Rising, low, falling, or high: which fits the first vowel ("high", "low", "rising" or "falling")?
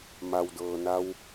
low